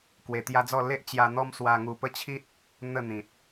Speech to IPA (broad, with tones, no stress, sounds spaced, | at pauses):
k w e˧ t̪ j a˦ d͡z ɔ˥˧ l e˦ ʔ t͡ɕ j a˧ n̪ ɔ˦ m s w a˧ ŋ u˧ p ə˦ t͡ɕʰ i˦ t̚ | n̪ ə˥˧ n̪ ĩ˨ t̚